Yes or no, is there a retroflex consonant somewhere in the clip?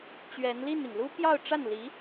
yes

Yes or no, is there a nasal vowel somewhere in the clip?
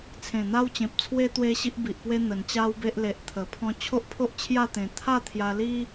yes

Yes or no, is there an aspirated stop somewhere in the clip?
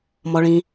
no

